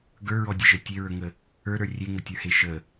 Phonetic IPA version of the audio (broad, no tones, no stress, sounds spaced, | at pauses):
ɡ ə˞ ɹ ɔ dʲ e ʒ ə tʲ e ɹ ə˞ ŋ ə | ə˞ ɾ ə˞ rʲ e ŋ ə tʲ ə˞ h e ʃ ə